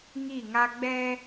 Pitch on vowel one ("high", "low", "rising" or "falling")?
falling